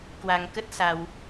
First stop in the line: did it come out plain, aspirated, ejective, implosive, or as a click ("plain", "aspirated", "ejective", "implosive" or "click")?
plain